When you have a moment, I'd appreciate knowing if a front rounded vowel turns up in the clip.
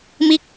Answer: no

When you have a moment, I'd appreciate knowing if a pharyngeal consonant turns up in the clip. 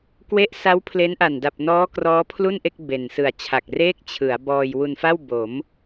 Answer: no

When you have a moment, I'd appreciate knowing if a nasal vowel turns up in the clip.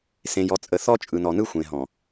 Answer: yes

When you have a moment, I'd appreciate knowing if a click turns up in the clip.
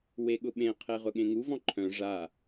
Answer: yes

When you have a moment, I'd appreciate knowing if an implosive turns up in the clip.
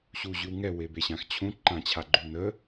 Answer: no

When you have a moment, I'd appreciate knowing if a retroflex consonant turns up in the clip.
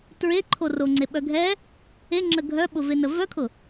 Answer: no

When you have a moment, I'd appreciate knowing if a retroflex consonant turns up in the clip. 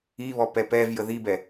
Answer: no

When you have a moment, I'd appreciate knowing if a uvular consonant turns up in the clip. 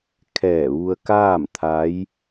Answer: no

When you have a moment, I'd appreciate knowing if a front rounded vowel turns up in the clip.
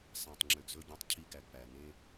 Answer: yes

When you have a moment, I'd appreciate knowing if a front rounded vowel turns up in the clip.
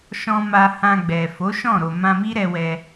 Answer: no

